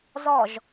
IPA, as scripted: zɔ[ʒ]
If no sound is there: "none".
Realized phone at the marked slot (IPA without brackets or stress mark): ʒ